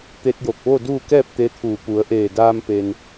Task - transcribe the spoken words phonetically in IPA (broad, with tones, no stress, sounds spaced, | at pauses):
t̪ e˧ t̚ j o˧˩ k̚ ʋ o˥˨ d uː˥˨ k ɛː˥˨ p̚ t̪ e˧˥ t̪ʰ uː˧˩ p u˩˧ ə̯ ʔ eː˧˩ d aː˧ m p e˧ n